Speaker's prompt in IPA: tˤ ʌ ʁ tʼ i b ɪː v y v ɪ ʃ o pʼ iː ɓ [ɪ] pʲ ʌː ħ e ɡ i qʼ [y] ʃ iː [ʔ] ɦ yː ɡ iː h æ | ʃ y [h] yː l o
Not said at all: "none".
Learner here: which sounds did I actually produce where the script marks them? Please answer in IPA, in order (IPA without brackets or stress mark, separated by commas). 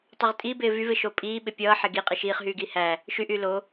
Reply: ɪ, i, χ, ʔ